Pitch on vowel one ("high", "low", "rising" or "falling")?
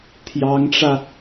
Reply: rising